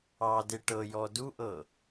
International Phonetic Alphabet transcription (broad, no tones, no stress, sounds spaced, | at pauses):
ɑ d e ʈ ɤ j ɔ d u ʔ ɤ